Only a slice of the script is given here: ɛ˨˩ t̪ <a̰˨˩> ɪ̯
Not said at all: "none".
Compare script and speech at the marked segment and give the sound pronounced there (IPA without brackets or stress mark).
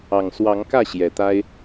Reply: a˦